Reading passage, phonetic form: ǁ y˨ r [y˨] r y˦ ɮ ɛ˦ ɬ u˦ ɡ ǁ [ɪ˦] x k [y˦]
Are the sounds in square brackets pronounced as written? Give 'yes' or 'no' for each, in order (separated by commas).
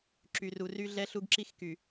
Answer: no, no, no